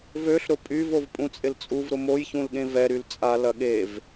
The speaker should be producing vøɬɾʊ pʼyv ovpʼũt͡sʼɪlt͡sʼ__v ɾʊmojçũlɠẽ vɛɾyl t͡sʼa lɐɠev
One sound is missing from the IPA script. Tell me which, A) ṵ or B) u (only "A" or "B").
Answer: B